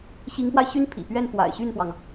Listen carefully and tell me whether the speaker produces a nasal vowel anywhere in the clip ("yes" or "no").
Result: no